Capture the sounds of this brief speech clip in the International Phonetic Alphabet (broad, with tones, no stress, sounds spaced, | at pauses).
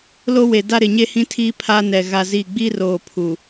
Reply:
l o˦ w e˨ d a˦ ɾ ɪ˨ ɲ e˦ h ĩ˦ tʰ iː˦ pʰ a˦ n ɛ˨ ɣ a˦ z i˦˨ ɡ͡b i˦ r oː˨ pʰ u˨